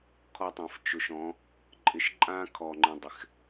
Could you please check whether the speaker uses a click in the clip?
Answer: yes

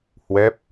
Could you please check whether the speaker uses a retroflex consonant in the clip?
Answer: no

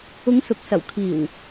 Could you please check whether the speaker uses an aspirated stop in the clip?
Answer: yes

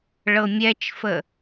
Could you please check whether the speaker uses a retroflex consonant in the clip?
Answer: yes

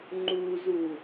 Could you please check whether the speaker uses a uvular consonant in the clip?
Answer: no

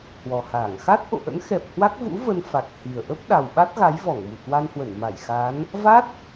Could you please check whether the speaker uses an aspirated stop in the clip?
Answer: no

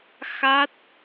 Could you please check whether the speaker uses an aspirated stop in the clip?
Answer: no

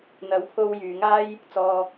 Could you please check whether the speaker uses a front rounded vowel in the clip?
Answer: yes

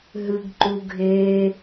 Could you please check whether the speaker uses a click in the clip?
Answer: yes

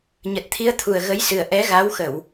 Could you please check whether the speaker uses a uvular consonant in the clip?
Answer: no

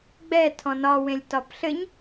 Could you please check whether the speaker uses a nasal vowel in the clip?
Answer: yes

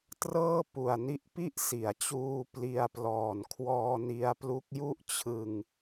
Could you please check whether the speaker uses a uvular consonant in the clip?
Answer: no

